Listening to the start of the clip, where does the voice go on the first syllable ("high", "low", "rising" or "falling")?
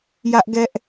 high